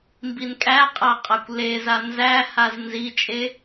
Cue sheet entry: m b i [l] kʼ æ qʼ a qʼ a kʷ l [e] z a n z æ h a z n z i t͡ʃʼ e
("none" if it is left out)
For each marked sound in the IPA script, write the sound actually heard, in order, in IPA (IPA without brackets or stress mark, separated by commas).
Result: n, e